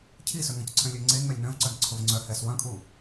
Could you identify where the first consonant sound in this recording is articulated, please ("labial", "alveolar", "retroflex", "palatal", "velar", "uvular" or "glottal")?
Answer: palatal